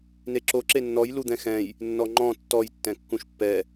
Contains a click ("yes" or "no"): yes